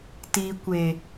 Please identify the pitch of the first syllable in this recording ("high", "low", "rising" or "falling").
low